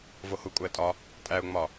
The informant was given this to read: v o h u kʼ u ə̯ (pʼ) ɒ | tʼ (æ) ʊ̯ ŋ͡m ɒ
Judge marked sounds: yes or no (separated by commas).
no, yes